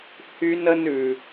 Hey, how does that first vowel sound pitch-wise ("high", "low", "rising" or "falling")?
high